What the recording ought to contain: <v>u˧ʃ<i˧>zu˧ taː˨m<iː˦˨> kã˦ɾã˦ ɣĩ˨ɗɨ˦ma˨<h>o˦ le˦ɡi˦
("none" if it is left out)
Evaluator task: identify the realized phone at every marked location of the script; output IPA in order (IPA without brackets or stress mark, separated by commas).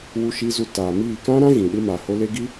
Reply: w, i˧, iː˦˨, h